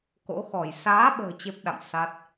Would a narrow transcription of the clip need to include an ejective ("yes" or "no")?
no